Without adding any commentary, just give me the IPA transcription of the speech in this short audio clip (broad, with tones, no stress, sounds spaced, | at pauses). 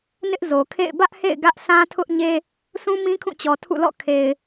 n ɪ˦ ʔ z o˨ kʰ ḛ˦˨ ɪ̯ b ä˦ ʔ h ḛ˦˨ ɪ̯ ɡ ä˦ ʔ sʰ ã˦ tʰ ʊ˦ ʔ ɲ e˦ | sʰ ũ˦ m ĩ˦ kʰ ũ˦˨ t͡ɕ ɔ˨ tʰ ṵ˦˨ l ɔ̰˦˨ kʰ e˨ ɪ̯